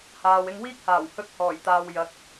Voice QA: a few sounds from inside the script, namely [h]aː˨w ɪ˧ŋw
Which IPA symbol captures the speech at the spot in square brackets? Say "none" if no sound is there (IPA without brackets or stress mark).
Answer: h